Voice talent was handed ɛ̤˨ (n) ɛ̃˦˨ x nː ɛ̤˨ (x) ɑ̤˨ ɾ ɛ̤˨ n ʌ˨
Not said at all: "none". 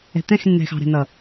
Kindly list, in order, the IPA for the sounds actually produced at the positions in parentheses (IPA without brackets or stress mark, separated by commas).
t̪, x